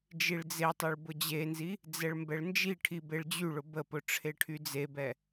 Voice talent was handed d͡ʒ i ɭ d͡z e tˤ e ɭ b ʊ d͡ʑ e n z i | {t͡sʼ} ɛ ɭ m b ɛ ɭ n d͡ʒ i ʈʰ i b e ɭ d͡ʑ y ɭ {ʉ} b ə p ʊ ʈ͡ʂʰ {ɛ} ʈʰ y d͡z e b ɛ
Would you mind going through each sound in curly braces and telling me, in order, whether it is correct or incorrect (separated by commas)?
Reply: incorrect, incorrect, incorrect